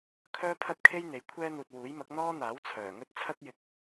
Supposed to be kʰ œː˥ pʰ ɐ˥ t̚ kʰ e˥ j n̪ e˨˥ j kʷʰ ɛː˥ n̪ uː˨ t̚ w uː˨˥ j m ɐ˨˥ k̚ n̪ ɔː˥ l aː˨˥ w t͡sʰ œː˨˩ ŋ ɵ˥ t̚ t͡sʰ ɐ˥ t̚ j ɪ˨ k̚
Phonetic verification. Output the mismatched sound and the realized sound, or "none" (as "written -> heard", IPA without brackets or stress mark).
l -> n̪